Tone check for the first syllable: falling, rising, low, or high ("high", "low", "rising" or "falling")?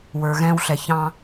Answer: low